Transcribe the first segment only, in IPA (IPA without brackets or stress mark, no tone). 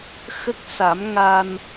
x